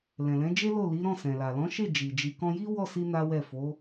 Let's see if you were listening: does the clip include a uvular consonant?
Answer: no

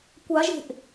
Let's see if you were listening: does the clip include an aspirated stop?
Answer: no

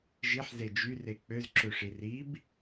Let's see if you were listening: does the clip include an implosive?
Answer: no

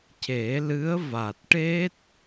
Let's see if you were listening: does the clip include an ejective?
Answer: no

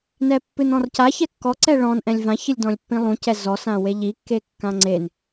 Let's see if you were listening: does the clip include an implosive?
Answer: no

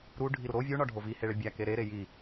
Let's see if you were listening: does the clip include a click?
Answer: no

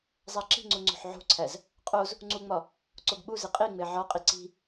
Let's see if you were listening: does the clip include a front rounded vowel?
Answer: no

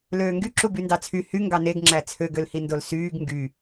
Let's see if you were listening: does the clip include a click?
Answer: yes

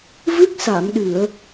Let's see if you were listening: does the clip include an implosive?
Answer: yes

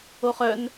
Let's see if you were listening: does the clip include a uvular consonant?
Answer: yes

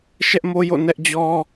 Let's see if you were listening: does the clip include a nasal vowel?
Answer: no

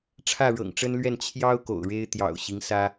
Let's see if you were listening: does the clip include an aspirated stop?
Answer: yes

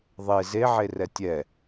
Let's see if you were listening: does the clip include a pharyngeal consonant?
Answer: yes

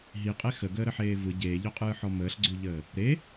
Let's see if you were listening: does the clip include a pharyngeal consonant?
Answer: yes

